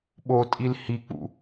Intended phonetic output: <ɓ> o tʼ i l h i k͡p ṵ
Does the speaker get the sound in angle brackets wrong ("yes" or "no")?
no